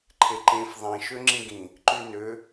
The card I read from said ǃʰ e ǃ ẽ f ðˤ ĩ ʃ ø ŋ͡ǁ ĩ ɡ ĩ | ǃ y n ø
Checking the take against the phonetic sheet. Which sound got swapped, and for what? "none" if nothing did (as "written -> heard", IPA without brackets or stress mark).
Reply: none